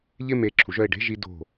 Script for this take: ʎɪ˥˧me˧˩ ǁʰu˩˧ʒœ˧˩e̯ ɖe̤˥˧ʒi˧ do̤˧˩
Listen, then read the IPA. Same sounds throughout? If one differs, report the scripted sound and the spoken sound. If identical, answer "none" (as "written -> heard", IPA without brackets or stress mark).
none